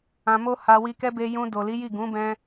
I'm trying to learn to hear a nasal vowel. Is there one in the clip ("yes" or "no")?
yes